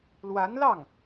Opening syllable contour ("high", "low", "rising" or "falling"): rising